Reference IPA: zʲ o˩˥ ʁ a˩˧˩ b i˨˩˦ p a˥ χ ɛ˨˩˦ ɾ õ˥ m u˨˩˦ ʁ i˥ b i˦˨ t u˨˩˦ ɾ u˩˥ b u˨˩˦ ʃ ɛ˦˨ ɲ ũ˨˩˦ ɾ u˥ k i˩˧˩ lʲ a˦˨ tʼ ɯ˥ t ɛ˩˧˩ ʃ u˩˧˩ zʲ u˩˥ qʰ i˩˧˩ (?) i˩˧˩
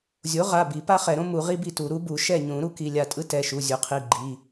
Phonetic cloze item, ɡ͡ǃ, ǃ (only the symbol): ɡ͡ǃ